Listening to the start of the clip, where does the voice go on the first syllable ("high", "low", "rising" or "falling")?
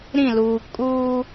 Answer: falling